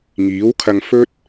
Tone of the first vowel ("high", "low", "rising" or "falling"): rising